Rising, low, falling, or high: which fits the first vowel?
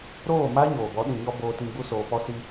falling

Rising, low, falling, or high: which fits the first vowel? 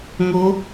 rising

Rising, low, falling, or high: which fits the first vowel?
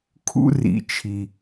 high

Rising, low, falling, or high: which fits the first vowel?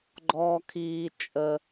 low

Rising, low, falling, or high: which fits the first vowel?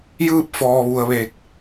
falling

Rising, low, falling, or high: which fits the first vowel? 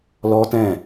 high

